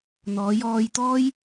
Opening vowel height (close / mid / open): mid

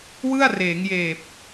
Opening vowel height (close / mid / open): close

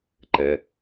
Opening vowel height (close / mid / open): mid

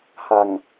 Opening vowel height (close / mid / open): open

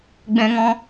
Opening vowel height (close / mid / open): mid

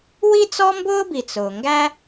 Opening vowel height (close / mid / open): close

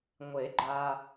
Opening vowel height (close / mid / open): mid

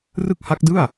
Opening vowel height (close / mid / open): close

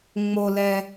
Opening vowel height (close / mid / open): mid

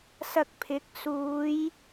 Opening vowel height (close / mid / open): open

